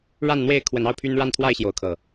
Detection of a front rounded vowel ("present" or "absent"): present